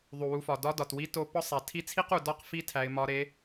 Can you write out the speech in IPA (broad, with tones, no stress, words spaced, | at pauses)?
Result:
ðˤu˩wu˩˧fɒ˩ dɒ˧˥dɒ˩twi˧˥ to˧pɒ˥ sˤæ˩tʰi˧˥t͡sʰi˥qu˩ dɒ˥q fi˥tʰæ˩˧ɪ̯ mɒ˩˧ ɾe˩˧